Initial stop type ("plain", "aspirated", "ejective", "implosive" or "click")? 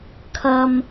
aspirated